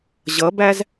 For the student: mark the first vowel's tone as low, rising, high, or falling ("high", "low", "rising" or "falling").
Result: rising